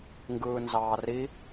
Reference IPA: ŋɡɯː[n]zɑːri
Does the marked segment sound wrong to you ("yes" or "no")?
no